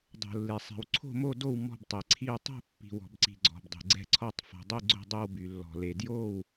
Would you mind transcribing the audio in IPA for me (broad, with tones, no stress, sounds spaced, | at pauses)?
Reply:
dˤ o̤˩ lː e˩ sˤ ɛ̤˩ w ǀʰ o̤˥˨ m o˥˨ d o˥˨ w m ɔ̤˥˨ b tˤ e˩ ǀʰ i˥˨ w tˤ o̤˥˨ pː i̤˩ w ɔ̤˩ b ǀ i̤˩ ɡ͡ǀ ɔ̤˩ b dˤ i̤˩ ɡ͡ǀ ɛ̤˥˨ ǀʰ ɔ˥˨ tˤ f ɔ̤˩ dˤ i˥˨ ɡ͡ǀ o̤˥˨ dˤ e˥˨ w b y˩ lː ɔ̤˩ l e˩ d j o˥˨ w